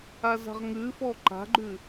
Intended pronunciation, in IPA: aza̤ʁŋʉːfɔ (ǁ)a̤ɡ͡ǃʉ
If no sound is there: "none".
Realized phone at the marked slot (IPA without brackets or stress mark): ǃ